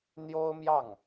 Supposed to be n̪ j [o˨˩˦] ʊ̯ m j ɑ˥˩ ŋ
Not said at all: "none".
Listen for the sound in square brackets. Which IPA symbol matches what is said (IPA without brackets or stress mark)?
o˥